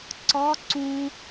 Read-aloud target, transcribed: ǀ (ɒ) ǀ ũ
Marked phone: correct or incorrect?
correct